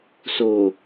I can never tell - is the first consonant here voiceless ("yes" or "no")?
yes